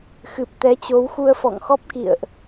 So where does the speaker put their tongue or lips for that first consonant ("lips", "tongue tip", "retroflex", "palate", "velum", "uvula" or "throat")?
velum